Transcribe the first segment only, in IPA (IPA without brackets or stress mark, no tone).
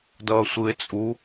d